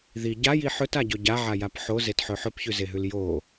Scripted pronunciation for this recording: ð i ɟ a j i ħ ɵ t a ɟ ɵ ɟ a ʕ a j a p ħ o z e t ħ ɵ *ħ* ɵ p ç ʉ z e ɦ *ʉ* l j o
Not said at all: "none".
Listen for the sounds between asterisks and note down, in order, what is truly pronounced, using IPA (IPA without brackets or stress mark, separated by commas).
ħ, ʉ